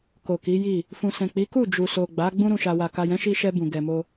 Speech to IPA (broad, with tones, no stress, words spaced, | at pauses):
ko˨ki˨˦ji˦˨ | fũ˨sɛ̃˨ k͡pi˨˦ku˦˨d͡ʒu˨so˨ ɡ͡ba˨˦ ɡ͡bũ˦ɾũ˧ʃa˧wa˧ ka˨jɛ̃˨˦ʃi˧ʃɛ˧ bũ˨ ɡɛ˧mo˦